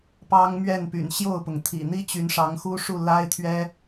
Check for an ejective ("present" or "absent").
absent